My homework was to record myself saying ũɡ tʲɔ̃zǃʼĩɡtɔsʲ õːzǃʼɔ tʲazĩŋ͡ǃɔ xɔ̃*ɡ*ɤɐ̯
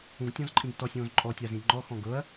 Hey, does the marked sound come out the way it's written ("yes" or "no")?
yes